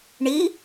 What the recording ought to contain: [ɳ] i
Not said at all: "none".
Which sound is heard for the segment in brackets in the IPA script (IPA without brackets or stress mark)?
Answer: ɳ